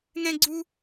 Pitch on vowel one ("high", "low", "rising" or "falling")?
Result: high